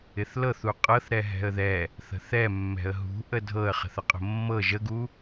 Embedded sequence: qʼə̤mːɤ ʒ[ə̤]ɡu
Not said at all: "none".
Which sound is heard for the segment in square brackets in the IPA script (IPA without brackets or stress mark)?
ə